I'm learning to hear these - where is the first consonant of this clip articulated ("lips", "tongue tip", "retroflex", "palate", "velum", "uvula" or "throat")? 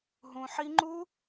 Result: throat